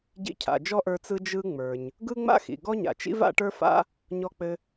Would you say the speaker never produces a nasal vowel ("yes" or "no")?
yes